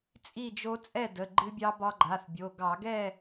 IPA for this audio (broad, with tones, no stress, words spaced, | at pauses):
t͡sʼi˥˨d͡ʒo˦˥ t͡sʼɛ˥˨də˩˧˩ ɡ͡ǃɨ˦˥bʲɑ˦˥bɒ˦˥ ɡ͡ǃa˩˧˩θbʲo˩˧˩ ɡɑ˧˩˧ɡɛ˥˨